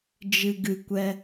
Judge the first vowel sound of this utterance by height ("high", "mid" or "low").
high